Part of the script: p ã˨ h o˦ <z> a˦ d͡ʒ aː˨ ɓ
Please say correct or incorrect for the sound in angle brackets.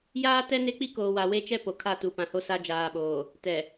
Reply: incorrect